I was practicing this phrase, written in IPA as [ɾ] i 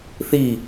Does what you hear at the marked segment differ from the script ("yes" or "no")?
yes